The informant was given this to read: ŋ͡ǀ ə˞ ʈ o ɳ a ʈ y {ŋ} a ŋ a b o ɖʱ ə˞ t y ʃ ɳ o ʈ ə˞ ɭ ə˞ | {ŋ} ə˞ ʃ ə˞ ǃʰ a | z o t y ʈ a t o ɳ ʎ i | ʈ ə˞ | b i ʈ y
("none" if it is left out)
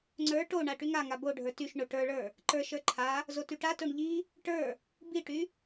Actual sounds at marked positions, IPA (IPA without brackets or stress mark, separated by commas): ŋ, ǃ